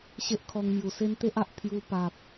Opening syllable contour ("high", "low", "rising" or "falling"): high